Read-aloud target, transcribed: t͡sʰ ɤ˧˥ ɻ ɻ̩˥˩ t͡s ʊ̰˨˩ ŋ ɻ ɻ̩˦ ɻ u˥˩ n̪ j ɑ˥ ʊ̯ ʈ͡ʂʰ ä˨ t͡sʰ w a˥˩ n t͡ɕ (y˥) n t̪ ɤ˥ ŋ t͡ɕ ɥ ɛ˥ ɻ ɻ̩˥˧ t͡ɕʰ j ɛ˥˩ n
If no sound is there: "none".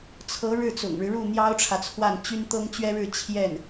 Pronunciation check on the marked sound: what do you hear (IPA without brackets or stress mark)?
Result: y˥